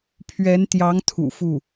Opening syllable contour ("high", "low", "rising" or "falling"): rising